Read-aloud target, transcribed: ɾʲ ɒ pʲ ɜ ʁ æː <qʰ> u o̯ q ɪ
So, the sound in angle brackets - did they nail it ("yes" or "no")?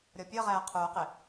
yes